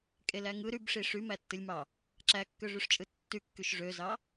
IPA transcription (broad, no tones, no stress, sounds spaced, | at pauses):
kʼ e l æ ŋ ɯ ɾ y b ʂ i ʂ y m æ tː ɯ lʲ m ɑ | ǁ æ kː ø ʐ y ʂ t͡ʃʼ ɯ tː y kː y ʃ ʐ ø z ɑ